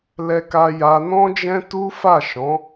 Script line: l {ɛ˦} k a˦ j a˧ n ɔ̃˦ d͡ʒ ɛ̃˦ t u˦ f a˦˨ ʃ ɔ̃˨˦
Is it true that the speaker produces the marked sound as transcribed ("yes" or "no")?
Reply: yes